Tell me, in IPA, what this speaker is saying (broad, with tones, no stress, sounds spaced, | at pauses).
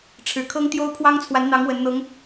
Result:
ʈ͡ʂʰ ɻ̩˨˩ kʰ ɤ˥ ŋ t̪ j o˥ ʊ̯ pʰ w ɑ˥ ŋ t͡sʰ w a˧˥ n n̪ ɑ˧˥ ŋ w ə˧˥ n n̪ ɤ˧˥ ŋ